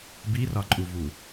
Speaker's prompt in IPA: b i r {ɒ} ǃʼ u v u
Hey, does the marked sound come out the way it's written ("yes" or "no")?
yes